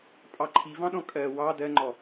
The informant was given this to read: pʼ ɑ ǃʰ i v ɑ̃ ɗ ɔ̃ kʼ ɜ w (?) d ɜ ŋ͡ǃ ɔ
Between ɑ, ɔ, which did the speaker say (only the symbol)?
ɑ